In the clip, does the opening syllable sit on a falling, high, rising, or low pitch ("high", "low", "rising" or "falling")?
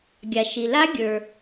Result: low